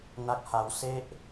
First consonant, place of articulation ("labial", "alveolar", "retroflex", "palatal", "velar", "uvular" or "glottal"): alveolar